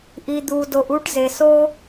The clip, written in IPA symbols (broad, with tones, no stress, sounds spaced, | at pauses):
ʔ i˩ d̪ u˩ d o˩ ʔ u˦ ʈ z e˩ s o˥